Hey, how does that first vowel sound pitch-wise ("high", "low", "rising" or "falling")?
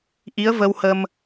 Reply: rising